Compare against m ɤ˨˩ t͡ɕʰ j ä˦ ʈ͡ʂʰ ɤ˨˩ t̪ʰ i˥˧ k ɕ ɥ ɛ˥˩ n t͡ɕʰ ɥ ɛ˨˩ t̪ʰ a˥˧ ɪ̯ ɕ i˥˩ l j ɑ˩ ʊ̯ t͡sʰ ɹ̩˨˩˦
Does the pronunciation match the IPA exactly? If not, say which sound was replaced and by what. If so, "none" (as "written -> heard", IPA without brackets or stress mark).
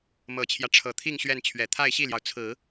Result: k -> ŋ